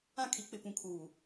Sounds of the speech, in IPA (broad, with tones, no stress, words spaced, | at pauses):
ã˦˨kʰi˨˦ k͡pɪ˨pũ˨kʰuː˨